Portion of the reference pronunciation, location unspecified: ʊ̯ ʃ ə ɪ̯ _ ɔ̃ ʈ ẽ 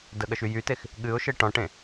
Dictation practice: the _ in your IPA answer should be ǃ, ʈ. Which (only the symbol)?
ʈ